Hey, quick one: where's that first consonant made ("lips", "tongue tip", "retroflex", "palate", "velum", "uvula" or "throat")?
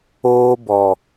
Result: lips